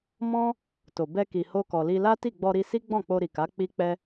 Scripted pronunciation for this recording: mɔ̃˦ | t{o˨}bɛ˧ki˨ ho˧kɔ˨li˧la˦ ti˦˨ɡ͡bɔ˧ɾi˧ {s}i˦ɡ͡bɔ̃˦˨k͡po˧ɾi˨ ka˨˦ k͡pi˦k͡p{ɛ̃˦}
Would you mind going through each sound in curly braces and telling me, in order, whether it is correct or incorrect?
correct, correct, incorrect: ɛ˦

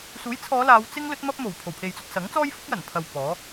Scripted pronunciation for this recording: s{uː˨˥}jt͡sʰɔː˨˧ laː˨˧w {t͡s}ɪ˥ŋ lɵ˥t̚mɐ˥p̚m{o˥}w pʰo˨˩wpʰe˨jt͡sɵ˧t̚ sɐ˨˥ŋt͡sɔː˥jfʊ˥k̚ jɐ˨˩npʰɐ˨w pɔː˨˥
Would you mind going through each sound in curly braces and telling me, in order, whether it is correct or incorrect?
correct, correct, incorrect: o˨˩

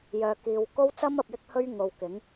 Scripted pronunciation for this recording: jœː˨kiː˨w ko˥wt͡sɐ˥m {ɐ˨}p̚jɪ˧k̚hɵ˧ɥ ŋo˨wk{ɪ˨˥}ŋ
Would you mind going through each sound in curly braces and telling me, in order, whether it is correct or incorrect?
correct, correct

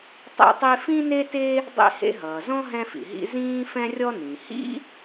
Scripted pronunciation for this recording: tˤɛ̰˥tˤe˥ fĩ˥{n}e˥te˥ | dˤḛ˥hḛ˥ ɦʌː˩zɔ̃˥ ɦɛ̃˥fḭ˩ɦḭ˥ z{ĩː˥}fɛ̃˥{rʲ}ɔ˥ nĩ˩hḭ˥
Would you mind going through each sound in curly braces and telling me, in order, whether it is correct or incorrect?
correct, correct, correct

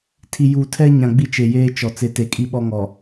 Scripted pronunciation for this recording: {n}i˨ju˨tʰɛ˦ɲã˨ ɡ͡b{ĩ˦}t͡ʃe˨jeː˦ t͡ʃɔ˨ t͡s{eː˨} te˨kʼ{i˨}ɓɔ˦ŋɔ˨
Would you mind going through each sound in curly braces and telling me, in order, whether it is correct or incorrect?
incorrect: tʰ, incorrect: i˦, incorrect: e˨, incorrect: i˦

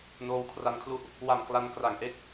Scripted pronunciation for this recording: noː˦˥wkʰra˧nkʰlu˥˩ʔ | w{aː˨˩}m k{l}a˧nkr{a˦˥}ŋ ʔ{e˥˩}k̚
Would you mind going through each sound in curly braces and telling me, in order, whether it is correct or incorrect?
incorrect: a˨˩, correct, incorrect: a˨˩, correct

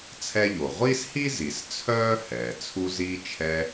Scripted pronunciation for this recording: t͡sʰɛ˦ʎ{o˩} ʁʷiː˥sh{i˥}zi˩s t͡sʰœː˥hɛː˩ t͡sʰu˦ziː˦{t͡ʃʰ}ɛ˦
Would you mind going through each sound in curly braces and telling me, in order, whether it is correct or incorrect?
correct, correct, correct

